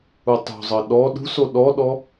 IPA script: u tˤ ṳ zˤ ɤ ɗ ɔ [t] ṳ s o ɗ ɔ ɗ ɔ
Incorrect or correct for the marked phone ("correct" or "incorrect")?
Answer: incorrect